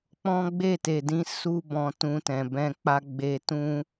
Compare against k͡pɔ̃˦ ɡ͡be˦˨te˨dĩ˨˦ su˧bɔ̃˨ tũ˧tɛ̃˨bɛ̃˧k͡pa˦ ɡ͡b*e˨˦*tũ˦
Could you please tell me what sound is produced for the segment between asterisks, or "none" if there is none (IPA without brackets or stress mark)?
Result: e˧